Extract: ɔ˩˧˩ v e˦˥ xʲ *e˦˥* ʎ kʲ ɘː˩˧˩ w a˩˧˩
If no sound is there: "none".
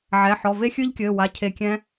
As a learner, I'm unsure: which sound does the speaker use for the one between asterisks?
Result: ɨ˦˥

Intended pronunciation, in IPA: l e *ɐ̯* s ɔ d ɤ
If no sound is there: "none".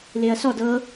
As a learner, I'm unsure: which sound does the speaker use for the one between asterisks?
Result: ɐ̯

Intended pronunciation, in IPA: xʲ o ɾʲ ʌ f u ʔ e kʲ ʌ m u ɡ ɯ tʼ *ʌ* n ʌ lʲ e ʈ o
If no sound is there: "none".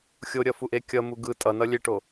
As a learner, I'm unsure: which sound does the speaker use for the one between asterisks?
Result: ʌ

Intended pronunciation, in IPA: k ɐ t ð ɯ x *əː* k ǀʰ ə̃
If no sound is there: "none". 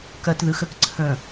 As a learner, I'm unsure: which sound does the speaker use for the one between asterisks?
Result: ə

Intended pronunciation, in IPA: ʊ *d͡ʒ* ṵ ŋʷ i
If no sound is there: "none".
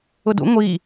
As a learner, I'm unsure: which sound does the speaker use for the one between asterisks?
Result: d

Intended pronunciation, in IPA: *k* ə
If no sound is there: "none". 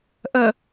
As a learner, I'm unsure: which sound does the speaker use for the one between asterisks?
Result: ʔ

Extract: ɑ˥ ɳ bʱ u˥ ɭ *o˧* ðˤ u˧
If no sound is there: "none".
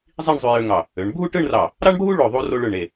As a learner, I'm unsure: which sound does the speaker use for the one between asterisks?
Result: o˧˩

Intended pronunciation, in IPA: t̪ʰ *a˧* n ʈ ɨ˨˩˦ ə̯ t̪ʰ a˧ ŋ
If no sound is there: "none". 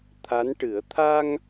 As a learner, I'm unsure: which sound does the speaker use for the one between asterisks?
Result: a˧˥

